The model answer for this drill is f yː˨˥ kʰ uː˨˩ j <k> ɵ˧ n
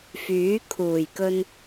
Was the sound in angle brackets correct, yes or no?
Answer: yes